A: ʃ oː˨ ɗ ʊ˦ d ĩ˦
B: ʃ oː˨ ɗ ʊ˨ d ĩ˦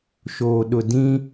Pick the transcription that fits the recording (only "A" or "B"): B